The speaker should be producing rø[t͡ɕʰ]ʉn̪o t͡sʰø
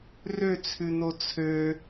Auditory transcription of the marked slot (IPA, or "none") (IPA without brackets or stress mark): t͡sʰ